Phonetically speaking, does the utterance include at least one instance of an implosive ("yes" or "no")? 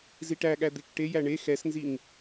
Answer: yes